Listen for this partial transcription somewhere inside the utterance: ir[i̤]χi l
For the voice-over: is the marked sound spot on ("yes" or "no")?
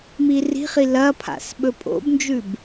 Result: yes